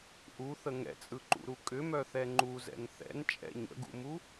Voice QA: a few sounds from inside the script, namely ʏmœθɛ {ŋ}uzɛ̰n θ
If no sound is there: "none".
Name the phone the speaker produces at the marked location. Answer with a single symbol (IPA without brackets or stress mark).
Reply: ŋ͡ǃ